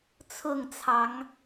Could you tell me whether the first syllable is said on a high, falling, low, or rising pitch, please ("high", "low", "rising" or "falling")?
falling